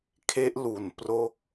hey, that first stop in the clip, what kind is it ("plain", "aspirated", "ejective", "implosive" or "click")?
aspirated